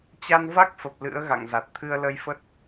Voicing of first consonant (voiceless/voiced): voiceless